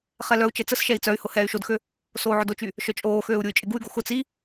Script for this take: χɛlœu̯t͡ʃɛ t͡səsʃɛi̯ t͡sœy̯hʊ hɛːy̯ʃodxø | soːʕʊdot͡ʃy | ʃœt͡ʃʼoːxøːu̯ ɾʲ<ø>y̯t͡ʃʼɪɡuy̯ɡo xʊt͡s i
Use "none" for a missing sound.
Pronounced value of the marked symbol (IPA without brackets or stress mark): u